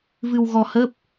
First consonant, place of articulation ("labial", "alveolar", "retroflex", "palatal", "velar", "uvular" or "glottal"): labial